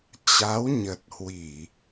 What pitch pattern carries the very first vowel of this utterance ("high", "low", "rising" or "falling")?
rising